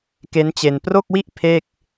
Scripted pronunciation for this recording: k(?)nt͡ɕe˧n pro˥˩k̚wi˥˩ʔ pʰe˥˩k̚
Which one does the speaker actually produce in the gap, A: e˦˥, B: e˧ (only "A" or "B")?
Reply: A